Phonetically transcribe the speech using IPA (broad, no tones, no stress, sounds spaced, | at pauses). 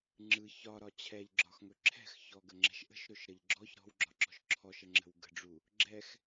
ŋ͡ǁ ɯ ç ɒ ɾ ɒ t͡ɕʰ ɛ ʎ ɡ͡ǁ ɒ x ŋ ɵ ǁʰ ɛ̤ x ç ɔ ɡ ə ŋ͡ǁ ɛ̤ ʃ ʔ ə̤ ʃ ɾ ɵ ʃ ɾ ə ʎ ɡ͡ǁ ɔ ç ɾ ɔ̤ w ɡ͡ǁ ɒ ǁ ɔ̤ ʃ ǁʰ ɔ ʃ ə ŋ͡ǁ ə̤ w ɡ ə̤ ɖ͡ʐ u | ɡ͡ǁ ɛ x